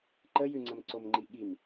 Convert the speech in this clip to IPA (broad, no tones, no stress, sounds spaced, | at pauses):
ǃ ə j ʉ ŋ͡ǀ ə m ǀ o m ŋ͡ǃ i ɠ i m